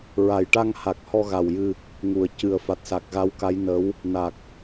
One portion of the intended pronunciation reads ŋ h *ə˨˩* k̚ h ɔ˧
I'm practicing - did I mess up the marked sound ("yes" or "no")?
yes